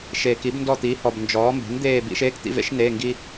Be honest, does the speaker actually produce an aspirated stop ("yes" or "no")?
no